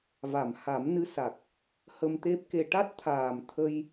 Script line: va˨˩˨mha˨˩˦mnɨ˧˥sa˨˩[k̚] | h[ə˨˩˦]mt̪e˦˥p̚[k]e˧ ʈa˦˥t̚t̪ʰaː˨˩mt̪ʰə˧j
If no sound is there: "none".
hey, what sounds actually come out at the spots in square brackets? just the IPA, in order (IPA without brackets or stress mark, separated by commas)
k̚, ə˧, k